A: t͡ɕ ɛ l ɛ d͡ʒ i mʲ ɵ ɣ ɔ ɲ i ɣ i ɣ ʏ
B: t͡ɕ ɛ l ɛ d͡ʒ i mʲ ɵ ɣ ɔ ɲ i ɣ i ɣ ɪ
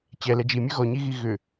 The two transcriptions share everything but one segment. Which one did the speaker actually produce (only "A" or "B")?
A